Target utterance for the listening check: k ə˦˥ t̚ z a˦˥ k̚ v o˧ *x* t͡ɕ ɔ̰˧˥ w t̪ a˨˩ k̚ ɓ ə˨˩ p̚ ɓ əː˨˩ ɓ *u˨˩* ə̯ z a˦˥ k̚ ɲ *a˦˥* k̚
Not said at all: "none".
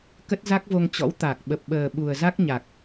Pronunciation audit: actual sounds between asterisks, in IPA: ŋ, u˨˩, a˨˩

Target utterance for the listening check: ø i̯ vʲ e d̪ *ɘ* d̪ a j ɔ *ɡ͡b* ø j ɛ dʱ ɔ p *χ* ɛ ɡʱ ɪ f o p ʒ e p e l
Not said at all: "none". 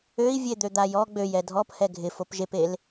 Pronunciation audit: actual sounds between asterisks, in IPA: ø, ɡ͡b, h

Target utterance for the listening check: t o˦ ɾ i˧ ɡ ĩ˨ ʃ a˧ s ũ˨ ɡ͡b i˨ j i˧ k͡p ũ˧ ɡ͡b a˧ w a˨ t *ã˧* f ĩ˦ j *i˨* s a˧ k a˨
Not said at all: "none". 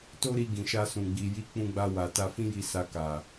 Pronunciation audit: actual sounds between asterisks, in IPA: a˧, i˧

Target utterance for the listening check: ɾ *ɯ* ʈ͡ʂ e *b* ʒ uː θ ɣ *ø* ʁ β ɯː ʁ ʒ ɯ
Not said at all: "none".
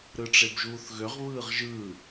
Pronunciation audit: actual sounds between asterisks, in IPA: ɯ, b, ø

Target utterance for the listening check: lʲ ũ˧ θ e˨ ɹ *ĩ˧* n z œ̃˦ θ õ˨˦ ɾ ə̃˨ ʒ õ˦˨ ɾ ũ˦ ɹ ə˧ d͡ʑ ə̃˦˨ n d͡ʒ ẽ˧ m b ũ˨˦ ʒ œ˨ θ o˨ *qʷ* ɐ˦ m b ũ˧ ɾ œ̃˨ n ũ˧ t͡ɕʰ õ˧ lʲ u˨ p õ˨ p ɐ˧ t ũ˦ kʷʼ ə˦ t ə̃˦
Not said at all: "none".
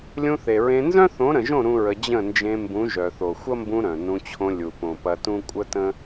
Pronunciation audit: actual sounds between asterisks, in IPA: ẽ˧, xʷ

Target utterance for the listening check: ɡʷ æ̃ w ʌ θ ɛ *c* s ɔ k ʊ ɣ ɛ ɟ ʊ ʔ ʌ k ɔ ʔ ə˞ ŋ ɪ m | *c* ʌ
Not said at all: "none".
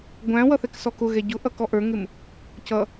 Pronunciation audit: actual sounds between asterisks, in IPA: k, c

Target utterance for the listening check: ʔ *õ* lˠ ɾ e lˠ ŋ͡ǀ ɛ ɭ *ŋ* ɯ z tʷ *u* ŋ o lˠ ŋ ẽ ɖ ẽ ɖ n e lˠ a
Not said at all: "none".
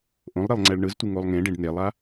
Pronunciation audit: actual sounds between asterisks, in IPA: õ, ɳ, ɯ

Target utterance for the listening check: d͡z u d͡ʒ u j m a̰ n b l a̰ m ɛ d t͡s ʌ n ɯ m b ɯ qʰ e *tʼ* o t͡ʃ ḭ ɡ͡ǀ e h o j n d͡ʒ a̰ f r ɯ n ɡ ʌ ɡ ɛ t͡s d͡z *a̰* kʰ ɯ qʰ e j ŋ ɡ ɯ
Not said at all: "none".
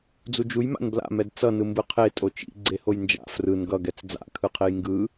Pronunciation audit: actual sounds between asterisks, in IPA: tʼ, a̰

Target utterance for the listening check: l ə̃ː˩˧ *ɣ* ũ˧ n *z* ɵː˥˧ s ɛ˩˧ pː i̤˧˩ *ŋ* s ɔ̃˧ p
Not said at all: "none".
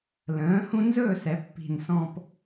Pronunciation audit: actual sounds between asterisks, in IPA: h, z, n

